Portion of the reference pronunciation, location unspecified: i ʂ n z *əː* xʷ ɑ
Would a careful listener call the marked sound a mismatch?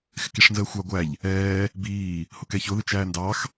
no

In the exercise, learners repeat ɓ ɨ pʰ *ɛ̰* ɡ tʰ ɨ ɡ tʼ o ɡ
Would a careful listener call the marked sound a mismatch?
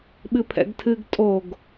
no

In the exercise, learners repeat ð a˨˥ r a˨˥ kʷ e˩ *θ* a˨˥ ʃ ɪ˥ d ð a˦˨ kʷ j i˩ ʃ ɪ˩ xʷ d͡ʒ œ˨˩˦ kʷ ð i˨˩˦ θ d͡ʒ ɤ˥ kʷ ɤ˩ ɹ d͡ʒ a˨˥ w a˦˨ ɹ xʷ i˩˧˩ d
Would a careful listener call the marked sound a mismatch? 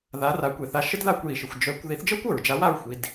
no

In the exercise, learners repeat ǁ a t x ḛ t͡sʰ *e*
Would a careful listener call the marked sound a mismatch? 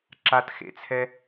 yes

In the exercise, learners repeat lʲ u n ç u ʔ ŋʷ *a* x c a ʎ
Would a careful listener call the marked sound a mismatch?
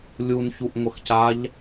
yes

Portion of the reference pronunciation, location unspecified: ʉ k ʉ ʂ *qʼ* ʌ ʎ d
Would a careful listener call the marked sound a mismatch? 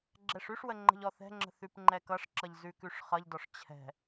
yes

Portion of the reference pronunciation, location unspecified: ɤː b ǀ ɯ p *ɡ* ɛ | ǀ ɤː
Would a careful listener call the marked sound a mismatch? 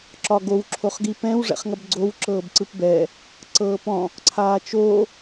yes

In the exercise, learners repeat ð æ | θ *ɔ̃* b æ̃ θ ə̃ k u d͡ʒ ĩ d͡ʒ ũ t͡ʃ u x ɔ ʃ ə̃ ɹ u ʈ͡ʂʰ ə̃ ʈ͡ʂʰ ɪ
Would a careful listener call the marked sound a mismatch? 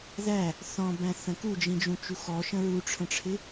no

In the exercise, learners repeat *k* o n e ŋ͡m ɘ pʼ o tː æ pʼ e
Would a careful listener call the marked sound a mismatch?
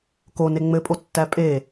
no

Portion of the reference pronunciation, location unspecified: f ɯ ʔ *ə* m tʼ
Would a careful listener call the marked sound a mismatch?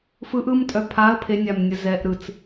yes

